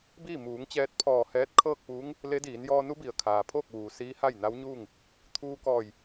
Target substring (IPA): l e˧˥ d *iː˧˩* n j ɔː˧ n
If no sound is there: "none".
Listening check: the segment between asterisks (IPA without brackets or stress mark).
iː˩˧